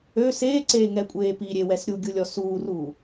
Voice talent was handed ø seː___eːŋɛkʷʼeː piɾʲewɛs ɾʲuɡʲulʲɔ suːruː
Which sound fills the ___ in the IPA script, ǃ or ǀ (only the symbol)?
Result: ǀ